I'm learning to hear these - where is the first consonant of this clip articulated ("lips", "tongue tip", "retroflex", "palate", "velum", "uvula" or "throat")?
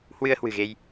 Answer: throat